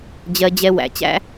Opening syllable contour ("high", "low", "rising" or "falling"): high